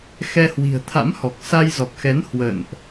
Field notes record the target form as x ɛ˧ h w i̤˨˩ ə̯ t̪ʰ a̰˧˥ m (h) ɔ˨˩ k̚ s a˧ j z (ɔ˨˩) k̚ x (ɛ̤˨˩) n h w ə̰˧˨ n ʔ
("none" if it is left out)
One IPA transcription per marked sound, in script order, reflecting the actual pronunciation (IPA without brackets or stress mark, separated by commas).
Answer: h, ɔ˨˩, ɛ˨˦